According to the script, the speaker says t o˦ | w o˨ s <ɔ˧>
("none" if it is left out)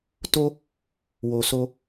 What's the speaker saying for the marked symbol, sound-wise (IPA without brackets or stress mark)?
o˧